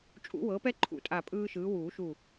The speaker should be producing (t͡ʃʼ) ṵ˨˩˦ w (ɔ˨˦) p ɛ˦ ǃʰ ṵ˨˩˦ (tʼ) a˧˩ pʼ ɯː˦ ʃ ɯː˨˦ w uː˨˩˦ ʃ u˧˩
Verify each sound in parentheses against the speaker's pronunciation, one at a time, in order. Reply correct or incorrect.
correct, incorrect, correct

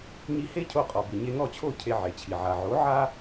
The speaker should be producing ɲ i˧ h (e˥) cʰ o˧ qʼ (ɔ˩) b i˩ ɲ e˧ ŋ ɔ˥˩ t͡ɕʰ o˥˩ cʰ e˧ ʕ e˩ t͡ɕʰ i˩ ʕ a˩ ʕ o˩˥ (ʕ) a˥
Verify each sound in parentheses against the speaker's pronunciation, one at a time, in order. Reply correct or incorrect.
correct, correct, correct

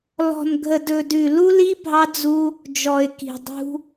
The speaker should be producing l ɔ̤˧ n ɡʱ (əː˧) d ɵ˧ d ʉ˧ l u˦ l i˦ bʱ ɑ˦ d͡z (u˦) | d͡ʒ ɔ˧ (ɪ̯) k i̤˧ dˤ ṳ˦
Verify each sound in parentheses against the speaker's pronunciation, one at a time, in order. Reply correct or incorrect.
incorrect, correct, correct

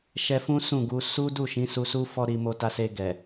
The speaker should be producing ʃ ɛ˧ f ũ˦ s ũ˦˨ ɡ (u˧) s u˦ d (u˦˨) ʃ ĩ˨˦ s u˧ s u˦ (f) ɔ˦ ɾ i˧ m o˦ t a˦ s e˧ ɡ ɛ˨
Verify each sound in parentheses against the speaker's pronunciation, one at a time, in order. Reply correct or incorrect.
correct, correct, correct

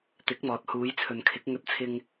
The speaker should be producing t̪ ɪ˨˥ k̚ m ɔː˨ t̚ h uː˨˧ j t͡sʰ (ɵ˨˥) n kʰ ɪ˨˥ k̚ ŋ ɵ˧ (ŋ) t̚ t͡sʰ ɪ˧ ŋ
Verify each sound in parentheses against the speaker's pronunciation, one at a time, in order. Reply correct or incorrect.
incorrect, incorrect

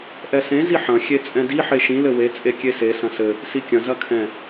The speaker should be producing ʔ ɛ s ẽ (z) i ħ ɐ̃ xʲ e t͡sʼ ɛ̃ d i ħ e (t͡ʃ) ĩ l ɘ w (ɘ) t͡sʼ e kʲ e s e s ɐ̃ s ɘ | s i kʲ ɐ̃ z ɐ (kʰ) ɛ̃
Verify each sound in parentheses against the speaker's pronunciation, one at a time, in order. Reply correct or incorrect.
correct, incorrect, incorrect, correct

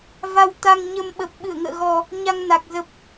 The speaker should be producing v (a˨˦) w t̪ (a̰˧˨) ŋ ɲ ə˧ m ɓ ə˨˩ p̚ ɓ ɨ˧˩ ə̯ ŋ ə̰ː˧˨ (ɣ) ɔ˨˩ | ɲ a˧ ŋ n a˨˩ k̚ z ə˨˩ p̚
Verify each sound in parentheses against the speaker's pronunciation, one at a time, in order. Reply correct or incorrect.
incorrect, incorrect, correct

